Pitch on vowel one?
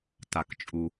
low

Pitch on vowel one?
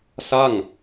falling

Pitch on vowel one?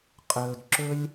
low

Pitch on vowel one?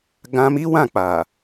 high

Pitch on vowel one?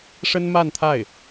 high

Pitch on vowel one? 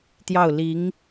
falling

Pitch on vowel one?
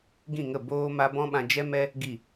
falling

